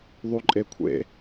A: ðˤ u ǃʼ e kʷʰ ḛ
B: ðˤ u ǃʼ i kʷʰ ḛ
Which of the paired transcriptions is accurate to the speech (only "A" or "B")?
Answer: A